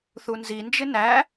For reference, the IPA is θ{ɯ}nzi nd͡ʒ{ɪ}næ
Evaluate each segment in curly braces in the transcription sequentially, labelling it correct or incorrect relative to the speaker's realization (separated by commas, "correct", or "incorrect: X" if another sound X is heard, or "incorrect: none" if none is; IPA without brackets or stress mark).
incorrect: u, correct